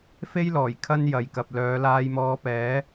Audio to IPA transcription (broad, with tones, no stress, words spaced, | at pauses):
fe˥jlɔː˨˩j kʰɐ˥njɐ˨jkɐ˨p̚ lœː˨˧laː˧jmɔː˧pɛː˨˥